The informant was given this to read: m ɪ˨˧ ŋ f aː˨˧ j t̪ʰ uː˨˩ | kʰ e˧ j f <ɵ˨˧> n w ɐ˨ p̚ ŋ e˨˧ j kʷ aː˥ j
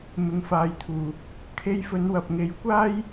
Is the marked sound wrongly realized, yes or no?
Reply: no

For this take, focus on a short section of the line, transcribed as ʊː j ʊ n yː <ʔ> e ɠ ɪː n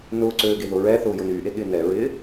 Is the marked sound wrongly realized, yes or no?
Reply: no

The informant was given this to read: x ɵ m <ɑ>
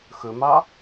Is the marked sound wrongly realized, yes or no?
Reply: no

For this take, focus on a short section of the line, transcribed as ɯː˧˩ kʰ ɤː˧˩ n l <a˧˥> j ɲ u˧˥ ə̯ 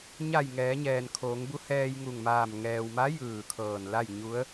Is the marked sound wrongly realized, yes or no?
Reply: yes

